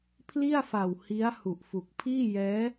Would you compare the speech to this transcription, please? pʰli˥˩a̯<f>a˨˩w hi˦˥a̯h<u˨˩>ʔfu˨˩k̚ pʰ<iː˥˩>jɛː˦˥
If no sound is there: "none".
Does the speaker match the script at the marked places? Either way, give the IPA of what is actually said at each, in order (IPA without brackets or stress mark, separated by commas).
f, u˨˩, iː˥˩